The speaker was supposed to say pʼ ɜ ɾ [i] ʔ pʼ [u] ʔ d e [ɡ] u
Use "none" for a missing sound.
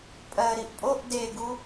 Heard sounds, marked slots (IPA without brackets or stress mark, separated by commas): i, o, ɡ